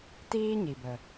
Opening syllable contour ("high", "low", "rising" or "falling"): high